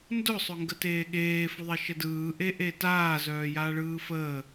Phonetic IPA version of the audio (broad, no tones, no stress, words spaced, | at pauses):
ndʊsˤʊŋɡəteː ɠeːfʊðˤeʃə dɯːʔeʔe taːzœːjaːɭɯː fəː